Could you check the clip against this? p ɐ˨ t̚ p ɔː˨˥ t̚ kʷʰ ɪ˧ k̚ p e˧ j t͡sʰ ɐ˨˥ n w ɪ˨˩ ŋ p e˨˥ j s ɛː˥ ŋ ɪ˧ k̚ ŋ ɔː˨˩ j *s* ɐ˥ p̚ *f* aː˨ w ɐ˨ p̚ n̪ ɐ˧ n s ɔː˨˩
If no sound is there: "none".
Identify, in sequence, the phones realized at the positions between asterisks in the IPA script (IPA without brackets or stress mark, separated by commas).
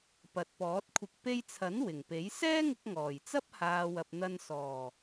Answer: t͡s, h